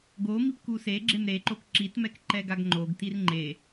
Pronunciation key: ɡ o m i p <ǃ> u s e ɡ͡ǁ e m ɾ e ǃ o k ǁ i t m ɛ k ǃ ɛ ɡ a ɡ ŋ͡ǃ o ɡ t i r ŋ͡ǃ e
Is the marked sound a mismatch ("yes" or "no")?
yes